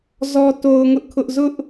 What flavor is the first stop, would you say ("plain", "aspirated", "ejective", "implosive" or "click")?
plain